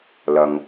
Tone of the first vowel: low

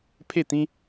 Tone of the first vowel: falling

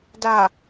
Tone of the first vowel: low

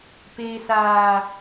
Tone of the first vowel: low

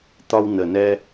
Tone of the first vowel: high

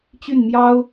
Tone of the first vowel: falling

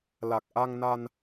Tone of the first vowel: low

